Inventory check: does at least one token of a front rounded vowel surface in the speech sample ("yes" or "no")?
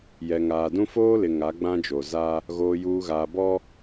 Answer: no